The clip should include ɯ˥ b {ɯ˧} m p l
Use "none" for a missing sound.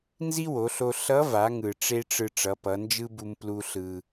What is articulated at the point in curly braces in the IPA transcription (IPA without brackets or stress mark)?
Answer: u˧